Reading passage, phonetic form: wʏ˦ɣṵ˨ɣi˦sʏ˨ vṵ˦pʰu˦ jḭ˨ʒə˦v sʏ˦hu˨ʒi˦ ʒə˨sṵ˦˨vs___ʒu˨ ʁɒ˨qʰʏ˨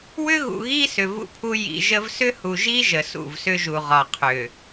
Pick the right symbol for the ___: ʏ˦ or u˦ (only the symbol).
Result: ʏ˦